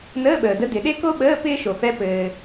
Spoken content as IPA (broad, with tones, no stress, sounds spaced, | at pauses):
n əː˧˥˧ ɓ əː˩ d ə˧˥ d ɪ˩ ɗ e˥ k o˥ ɓ əː˧˥˧ p ɪː˥ ʃ o˩ f ɛ˧˥ p ɘː˩